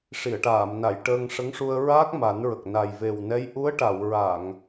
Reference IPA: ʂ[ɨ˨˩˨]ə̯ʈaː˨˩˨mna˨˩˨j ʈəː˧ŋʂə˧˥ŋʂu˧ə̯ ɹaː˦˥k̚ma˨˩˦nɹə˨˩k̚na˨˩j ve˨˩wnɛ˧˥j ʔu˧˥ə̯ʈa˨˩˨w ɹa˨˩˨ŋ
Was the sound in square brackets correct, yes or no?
no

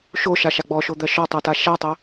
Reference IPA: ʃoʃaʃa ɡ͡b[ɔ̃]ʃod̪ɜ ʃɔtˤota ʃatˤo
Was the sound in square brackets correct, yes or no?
no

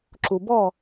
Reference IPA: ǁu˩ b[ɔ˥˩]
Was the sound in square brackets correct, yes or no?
yes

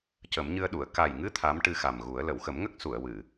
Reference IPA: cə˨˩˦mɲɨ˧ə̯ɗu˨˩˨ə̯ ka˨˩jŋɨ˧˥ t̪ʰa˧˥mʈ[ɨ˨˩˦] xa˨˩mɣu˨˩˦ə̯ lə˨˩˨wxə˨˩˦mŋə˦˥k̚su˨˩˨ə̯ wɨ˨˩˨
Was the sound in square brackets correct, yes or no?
no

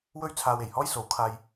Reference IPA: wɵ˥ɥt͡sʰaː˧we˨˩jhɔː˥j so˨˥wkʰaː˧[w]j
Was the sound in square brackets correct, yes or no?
no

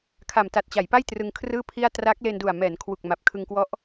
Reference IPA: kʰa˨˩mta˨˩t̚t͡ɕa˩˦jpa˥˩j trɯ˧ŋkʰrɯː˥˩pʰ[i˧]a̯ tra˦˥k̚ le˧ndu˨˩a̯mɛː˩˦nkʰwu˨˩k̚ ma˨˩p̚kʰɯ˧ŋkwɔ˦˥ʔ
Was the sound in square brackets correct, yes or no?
no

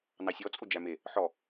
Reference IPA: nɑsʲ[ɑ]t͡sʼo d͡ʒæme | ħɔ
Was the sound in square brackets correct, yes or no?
no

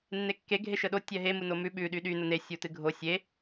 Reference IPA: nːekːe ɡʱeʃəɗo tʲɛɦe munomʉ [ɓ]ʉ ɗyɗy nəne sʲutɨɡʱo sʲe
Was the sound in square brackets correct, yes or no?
yes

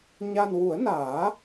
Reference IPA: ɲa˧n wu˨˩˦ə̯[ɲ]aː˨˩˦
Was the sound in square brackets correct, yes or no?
no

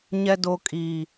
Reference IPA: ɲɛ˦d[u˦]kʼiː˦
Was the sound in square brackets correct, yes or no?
no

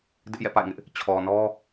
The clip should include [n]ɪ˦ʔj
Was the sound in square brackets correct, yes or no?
no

